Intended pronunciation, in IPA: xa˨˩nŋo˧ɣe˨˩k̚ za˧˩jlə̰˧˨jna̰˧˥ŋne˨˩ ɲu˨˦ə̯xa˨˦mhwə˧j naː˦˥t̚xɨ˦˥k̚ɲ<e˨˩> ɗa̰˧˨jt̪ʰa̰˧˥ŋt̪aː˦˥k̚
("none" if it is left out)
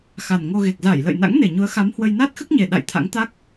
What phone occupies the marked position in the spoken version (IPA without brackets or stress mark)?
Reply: e˨˩